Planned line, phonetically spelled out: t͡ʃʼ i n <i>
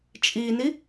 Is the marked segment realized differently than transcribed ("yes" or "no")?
no